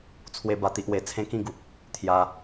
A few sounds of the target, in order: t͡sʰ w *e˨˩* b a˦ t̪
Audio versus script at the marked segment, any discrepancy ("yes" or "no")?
yes